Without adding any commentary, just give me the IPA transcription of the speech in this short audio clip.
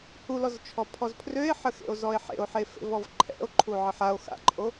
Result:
hulɔzt͡ʃʰɔ pʰɔzpʰrøe̯ħəxḛo̯ zɔe̯ħḛo̯ħefḛv ɔvǃʰɛ̰o̯ ǃʰuʕəħao̯ xa̰ǃʼo

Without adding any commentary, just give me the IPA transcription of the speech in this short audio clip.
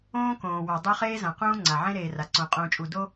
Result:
õː˦ kõː˨wa˨dˤo˦ χeː˦zã˨qũː˦ ŋ͡ǀa˨ʕẽ˦ɾeː˨ ra˨ǀõ˨qʼũː˨t͡ʃʼu˨ do˦

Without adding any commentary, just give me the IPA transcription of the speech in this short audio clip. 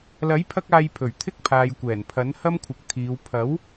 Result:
lɐ˨˥jpʰɐ˧k̚aː˨j pʰɵ˨˩ɥt̪ʰɪ˥k̚pʰaː˨jkʷɛː˨˩n pʰɐ˨˥nhɐ˥mkʷʰɪ˨k̚ t̪ʰiː˨˧w pʰɐ˨˥w

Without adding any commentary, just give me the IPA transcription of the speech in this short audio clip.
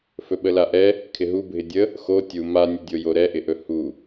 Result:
fɵɓəlaʔɛ | kʰɪɦubʱɪ dʲə | xo tʲu manʲɵdʲo joɾɛʔɪʔɵ hu

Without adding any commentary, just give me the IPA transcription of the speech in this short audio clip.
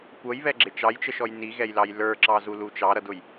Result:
kʷʌjβɛɡ͡ǁɪ t͡ʃɑjt͡ʃəʃɔj niɣɛjlɑj lə˞ǁɑzulu t͡ʃɑɾʌdʊj

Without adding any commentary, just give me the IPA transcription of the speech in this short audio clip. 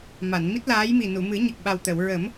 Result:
ma˨˩˨nmi˦˥t̚laː˧˥jmi˨˩ nu˨˩˨mɨ˨˩˦ ɲə˨˩k̚ɓa˨˩wt̪ə˨˩˨w ɹə˨˩˦m

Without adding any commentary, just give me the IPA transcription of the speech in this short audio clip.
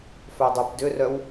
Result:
fœdˤypdʏrœw

